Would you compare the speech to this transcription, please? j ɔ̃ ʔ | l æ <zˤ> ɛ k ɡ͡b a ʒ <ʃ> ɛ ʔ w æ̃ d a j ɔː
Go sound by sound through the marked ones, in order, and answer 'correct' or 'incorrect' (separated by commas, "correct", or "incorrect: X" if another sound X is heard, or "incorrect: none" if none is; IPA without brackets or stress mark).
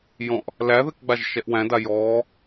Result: incorrect: ð, correct